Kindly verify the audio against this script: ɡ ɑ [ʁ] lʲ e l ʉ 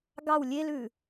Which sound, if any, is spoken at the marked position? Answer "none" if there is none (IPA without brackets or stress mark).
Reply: w